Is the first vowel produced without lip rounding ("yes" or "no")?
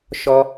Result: no